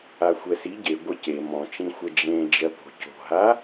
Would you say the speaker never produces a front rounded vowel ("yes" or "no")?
yes